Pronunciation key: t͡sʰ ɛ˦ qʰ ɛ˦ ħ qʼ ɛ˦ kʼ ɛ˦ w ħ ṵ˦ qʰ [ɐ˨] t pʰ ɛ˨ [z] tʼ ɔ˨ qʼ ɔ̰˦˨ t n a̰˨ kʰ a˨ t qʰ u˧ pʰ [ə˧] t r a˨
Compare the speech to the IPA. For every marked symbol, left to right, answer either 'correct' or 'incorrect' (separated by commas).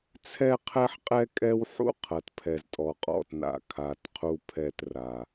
correct, correct, incorrect